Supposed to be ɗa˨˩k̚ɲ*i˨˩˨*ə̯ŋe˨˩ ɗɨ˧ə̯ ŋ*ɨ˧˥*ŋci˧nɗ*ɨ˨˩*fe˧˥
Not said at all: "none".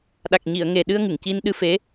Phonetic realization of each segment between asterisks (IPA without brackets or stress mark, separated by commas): i˨˩˨, ɨ˨˩˨, ɨ˧˥